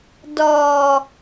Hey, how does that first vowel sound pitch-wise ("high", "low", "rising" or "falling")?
low